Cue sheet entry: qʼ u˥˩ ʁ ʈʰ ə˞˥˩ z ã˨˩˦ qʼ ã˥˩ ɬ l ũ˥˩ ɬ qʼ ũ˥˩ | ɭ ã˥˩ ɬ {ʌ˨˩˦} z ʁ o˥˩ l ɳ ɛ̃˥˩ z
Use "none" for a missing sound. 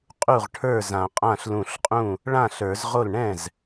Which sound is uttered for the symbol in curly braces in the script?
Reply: ə˞˨˩˦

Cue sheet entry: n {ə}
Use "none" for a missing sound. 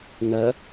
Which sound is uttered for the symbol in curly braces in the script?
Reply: ə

